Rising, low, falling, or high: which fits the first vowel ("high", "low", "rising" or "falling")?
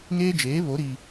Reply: high